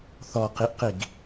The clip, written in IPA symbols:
θ ɔ q i ʔ q i ɡ

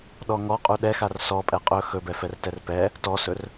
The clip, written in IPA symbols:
ɗ ɔ ŋ ɔ qʼ u ɗ ɛ x a r s ɔ pʼ ɛ qʼ ɵ x ɵ b ɛ f ɛ r t ɛ r p ɛ | t ɔ s ɵ r

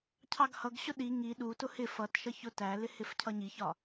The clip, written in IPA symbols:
cʰ ɑ ɡ h ʌ ɡ ɕ ʊ ɗ i ŋ i ɗ u t ʊ h ɪ f ʌ t ʃ ʌ ç ʊ t æ l ɪ h ɪ f cʰ ʌ ɲ i ç ɒ

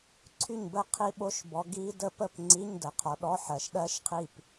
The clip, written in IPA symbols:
ǀʰ y˥˨ ɲ b ə˥˨ qʰ i˦˥ ɓ o˦˥ ʃ b ɔ˨˦ ɡ i˦˥ d ə˦˥ p ə˥˨ p ŋ͡ǀ i˧˥˧ ɲ d ə˨˩ qʰ ɔ˨˦ ɗ ɔ˧˥˧ ħ ɜ˨˩ ʃ ɗ ɜ˦˥ ʃ qʰ i˥˨ p

